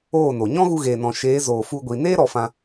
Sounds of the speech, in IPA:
oː˦˨ n o˨ ɲ ɔ̃˦ ɣ u˧ ɣ eː˨ n ɔ̃˨ ʃ eː˨˦ z oː˨ f u˧ ɡʷ i˨ n eː˦ ɾ ɔ˧ f ã˧

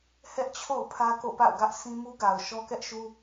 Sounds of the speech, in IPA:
h ɛ˦ ʔ t͡ɕʰ o̰˦˨ ʊ̯ pʰ ä˦ k o̰˦˨ p a̰˦˨ ʊ̯ ɡ ä˦ ʔ s ĩ˦ m u˦ ɡ a˨ ʊ̯ ʃ ɔ˦ k ɛ˦ ʔ ʃ u˦

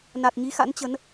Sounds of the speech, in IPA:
n a˨˩ t̚ ɲ i˨˦ x a̰˧˥ n t͡ɕ ə˨˦ n

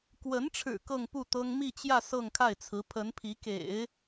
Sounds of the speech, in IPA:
k w ə˧˥ n ʈ͡ʂʰ ɻ̩˨˩ k ɤ˥˧ ŋ p u˥˩ t̪ ɤ˥ ŋ m i˥˧ t͡ɕ j ä˥˧ s ɤ˥˧ ŋ kʰ a˥˩ ɪ̯ t͡sʰ ɹ̩˧˥ pʰ ə˧˥ n pʰ i˧˥ k ḛ˨˩˦ ɪ̯

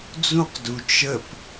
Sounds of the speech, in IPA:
d͡z ũ q d u t͡ʃ ə p

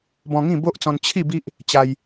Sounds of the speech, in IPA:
b ɔ̃˧ ŋ ĩ˥˧ b o˦ ʔ t͡s ɔ̃˧ n t͡ɕʰ i˥˧ b i˦ ʔ | t͡ɕ a˧ j

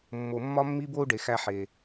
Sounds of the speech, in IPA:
mː o˩ mː ɒ˧ mː i˧ b o˧ u̯ ɖ e˩ x æ˧ ħ e˩

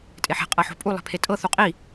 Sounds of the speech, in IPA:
tʼ e ħ e̤ qʼ ɤ ħ o̤ pʼ u lˠ e̤ pʰ e tʼ ɤ θ u qʼ i

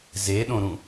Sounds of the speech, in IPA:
z e ɗ õ ɾ ũ

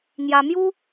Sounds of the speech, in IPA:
ŋ j a˧ m j u˦

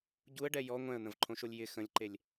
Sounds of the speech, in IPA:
ɟ u ə̯ ɖ ɛ j ɔ ŋʷ ɛ̃ ə̯ n̪ ə̃ v ǃʰ õ ʃ o lʲ j ɪ x ə̃ lʲ ǃ e lʲ

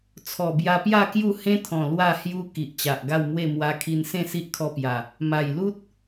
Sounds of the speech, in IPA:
t͡sʰ ɔ˨˩ b j a˧ p j a˥˧ k j u˥˧ h ẽ˦ t̪ʰ ɔ̃˨˩ l w a˥˧ h j u˧ k i˨ ʔ t͡ɕ a˨ ʔ ɡ a˥˧ w m w e˥˧ m w a˧ kʰ i˧ n s ẽ˥˧ s i˦ ʔ kʰ ɔ˧ p j a˨˩ | m a˨˩ j l u˦ t̚

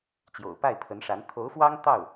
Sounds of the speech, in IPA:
t͡ɕ j o̰˨˩ ʊ̯ p a˥˩ ɪ̯ pʰ ə˧˥ n ʂ a˧˥ n t̪ʰ o˧˥ ʊ̯ f w ɑ˥ ŋ t̪ ɑ˥˩ ʊ̯

